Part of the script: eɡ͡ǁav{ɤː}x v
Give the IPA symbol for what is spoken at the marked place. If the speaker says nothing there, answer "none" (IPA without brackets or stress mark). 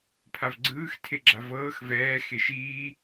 ɤː